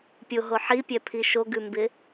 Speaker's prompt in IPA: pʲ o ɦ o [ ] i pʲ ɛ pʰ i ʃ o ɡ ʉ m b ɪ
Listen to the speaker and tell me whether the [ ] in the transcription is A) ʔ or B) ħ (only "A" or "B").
B